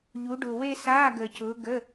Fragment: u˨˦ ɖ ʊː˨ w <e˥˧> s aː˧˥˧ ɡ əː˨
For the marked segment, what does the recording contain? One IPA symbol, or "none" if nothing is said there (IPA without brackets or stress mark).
e˥˧